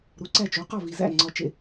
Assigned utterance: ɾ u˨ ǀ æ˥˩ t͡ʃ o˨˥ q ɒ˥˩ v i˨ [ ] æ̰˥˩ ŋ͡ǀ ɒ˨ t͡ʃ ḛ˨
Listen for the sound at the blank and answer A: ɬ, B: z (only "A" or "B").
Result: B